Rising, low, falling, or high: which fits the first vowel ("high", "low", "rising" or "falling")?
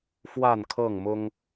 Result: falling